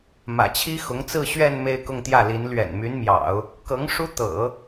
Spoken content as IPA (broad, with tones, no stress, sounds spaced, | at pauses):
m ä̰˨˩ t͡ɕʰ i˥ x ʊ˧˥ ŋ t͡s ɹ̩˥˧ ɕ ɥ ɛ˥˧ n m e˥˧ ɪ̯ k ʊ˥˧ ŋ t̪ j ä˥˩ l i˧˥ n l ɥ ɛ̰˨˩ n m y˧˥ n m j ɑ̰˨˩˦ ʊ̯ | k ɤ˧˥ ŋ ʂ u˥ t̪ ɤ̰˨˩˦